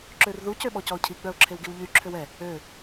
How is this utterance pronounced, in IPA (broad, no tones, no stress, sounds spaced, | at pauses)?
ǁ ø r ð u c ø ɓ ɔ c ɔ ʊ̯ cʰ i ɡ͡b œ ʊ̯ ǁʰ e w ɡ i w ʎ y ǁʰ ø w ɛ | ø